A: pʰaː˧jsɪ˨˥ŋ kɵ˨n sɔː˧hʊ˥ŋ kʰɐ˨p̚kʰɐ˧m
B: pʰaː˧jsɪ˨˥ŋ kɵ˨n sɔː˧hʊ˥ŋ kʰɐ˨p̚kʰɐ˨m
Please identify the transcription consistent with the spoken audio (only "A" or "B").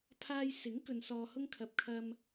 A